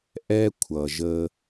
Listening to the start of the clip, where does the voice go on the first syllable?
high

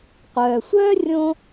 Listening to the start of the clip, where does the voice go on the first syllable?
low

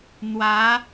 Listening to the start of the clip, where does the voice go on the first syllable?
rising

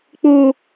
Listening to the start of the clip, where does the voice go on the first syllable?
high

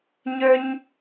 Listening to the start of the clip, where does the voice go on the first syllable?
high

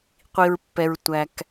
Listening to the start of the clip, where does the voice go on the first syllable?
low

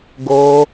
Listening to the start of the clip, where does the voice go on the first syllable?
low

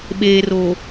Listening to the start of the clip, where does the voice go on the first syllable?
low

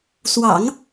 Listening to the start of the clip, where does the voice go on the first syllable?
low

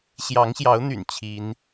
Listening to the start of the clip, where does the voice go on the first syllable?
rising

